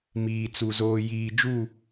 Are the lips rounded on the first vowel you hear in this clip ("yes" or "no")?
no